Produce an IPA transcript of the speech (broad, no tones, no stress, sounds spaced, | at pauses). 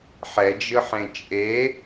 ħ ɛ d͡ʒ ɯ ħ ẽ t͡ʃʼ e